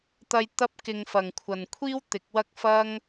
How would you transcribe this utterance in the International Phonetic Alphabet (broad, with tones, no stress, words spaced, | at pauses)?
t̪ɐ˧j t̪ɐ˥p̚kɪ˧ŋfɐ˨ŋ kʷʰɐ˨nkʷʰiː˥w t̪ɪ˨˥k̚wɐ˥k̚fɐ˥ŋ